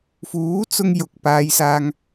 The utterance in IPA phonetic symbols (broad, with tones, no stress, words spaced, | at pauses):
fuː˨˥t͡sʊ˧ŋ jʊ˨k̚paː˨˧jsaː˧ŋ